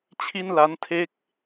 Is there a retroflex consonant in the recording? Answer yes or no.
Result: no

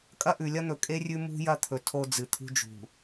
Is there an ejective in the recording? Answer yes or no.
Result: yes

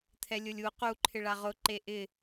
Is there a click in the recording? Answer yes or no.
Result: yes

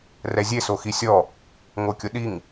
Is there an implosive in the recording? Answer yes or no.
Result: yes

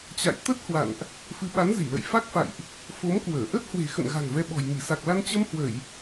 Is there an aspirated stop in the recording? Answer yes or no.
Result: no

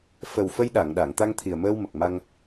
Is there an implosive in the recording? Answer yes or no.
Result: yes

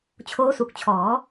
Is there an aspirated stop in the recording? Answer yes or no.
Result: yes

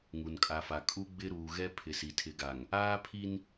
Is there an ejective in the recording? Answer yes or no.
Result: yes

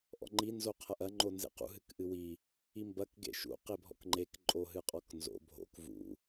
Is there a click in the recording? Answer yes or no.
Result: yes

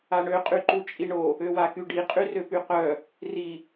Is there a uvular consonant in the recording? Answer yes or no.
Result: yes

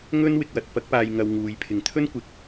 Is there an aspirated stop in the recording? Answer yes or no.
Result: yes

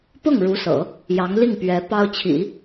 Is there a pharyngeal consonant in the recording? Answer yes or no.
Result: no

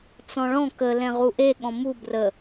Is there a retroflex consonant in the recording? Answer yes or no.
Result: yes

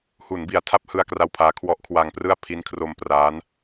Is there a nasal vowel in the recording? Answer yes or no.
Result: no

